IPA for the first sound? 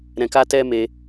ɾ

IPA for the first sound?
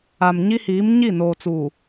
a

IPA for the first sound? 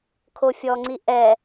kʰ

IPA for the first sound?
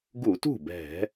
ɡ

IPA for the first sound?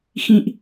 x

